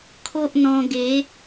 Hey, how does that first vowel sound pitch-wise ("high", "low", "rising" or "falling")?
high